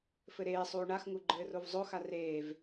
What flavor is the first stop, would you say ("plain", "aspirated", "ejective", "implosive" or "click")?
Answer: click